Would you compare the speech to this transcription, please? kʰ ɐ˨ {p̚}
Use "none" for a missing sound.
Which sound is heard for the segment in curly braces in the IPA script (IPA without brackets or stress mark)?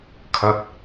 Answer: t̚